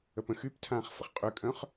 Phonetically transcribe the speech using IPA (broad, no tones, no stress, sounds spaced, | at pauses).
ə p ə̃ x y p tʰ ãː χ f ə̰ χ qʼ y kʼ œ̃ χ